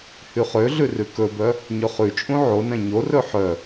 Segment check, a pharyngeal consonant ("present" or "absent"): present